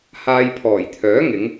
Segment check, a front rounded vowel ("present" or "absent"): present